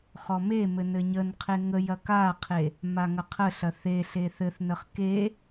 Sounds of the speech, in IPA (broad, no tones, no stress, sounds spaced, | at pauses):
χ ɔ m e m ɘ n ɘ ɲ ə n qʰ e ŋ ə j ɐ k a qʰ e | m a ŋ ɐ qʰ ə ɬ ɐ θ e ɬ e θ ɘ θ n ə χ k e